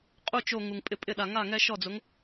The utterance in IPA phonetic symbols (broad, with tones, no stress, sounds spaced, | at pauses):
qʼ u˥˩ t͡ʃ o˧˩ ŋ u˩ ŋ pʼ ɪ˧˩ pʼ ɪ˧˩ ɗ a˩ ŋ a˥˩ ŋ ɛ˦ ʃ ɔ˥˩ d͡z ʊ˨˥ ŋ